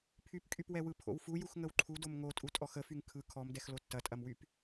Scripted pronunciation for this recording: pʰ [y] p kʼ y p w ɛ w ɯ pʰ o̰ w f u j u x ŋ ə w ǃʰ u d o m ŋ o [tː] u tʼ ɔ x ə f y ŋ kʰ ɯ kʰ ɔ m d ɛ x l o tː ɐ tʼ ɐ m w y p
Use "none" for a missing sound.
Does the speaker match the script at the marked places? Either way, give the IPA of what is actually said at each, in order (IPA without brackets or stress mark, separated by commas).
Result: y, tʼ